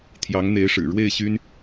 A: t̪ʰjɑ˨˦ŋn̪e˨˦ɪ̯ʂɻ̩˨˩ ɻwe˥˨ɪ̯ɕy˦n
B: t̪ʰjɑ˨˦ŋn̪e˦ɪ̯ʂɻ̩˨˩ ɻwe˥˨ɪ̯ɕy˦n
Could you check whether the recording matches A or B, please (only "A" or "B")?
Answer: A